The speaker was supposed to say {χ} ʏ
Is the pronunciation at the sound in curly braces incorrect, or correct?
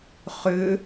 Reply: correct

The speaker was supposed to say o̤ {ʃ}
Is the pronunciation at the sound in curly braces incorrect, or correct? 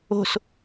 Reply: incorrect: s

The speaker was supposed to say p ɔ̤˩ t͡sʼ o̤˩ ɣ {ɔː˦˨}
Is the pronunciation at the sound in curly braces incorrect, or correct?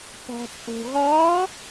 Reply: incorrect: ɔː˨˦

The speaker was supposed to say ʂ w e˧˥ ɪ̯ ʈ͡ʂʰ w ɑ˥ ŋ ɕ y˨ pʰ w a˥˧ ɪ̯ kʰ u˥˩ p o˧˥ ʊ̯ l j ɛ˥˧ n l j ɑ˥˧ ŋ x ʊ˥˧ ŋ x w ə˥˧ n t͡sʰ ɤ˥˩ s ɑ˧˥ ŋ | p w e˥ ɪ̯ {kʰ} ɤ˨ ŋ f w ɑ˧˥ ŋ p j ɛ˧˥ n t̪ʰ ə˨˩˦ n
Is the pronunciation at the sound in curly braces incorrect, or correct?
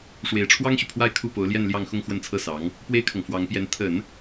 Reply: correct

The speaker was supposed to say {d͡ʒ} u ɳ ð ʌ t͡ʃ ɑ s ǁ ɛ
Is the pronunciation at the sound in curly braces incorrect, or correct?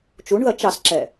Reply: incorrect: t͡ʃ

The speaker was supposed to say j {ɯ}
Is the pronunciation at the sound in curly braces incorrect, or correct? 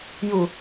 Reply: incorrect: u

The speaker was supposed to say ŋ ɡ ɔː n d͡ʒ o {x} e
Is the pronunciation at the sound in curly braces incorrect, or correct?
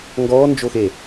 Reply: correct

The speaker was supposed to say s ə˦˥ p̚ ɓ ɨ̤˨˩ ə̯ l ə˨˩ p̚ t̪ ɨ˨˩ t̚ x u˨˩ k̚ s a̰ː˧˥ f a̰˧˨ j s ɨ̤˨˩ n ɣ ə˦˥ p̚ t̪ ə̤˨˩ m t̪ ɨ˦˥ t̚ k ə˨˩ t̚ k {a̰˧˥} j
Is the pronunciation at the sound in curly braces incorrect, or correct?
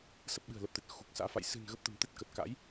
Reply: correct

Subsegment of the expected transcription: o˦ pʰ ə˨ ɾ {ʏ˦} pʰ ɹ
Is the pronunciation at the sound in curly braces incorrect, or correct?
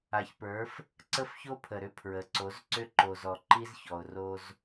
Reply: correct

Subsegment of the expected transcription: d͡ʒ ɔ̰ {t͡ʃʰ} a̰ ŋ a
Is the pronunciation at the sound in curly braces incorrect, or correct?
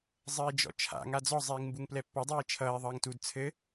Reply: correct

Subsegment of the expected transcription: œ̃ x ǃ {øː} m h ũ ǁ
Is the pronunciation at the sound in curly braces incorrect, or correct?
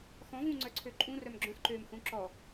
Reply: correct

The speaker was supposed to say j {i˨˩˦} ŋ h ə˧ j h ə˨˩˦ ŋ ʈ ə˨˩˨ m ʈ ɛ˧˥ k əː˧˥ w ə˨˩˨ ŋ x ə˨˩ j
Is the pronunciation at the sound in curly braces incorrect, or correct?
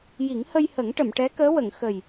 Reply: correct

